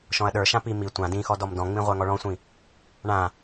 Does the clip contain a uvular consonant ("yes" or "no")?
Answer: yes